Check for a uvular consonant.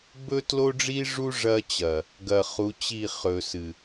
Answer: present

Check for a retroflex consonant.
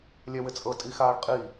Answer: present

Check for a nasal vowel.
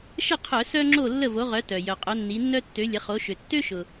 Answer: absent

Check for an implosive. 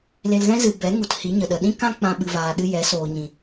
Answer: present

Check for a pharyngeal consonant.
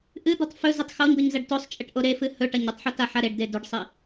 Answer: present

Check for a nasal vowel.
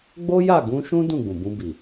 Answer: present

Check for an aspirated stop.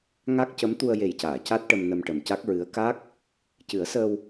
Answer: absent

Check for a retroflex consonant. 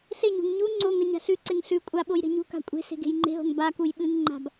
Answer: absent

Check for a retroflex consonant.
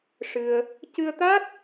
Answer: present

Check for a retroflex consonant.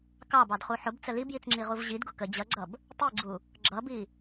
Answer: absent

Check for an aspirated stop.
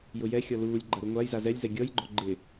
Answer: absent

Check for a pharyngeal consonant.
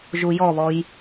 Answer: absent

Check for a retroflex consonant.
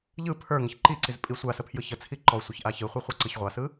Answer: absent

